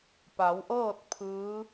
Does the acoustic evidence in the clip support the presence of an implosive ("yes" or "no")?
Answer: no